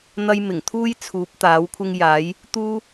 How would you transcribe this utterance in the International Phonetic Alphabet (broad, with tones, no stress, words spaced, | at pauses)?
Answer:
n̪ɐ˧jmɪ˨˩ŋt̪ʰuː˥j t͡sʰuː˨˥p̚t̪aː˨˥wkʷʰɪ˥ŋjaː˨˥j | t̪uː˥